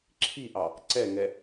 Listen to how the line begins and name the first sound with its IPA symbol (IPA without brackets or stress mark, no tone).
ǁʰ